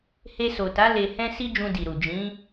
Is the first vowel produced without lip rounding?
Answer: yes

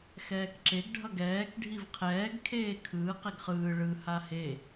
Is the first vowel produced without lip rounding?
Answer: yes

